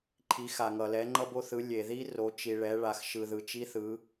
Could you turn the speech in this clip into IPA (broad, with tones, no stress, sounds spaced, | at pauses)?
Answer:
ǃʰ i˩˧ x a˩ ŋ ʌ˩ l ɛ˩˧ ŋ͡ǃ ʌ˧ b o˧ θ ɯ˩˧ lʲ e˩ ð i˧ r o˩˧ t͡ʃ i˩ ɭ ɛ˩˧ ɭ a˩ x ʃ ɯ˩ ð ɯ˩ t͡ʃ i˧ θ ɯ˩˧